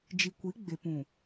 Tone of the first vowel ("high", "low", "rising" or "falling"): low